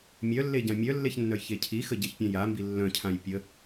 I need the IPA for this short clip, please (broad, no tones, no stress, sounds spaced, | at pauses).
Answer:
mʲ œ lː e ɟ ã mʲ œ lː e ç nː œ j ç e cʰ i x ə ɟ e ç pʲ ã j a m b i lː œ̃ cʰ ã j pʲ ə